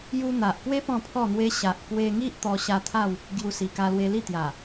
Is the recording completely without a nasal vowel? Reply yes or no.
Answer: no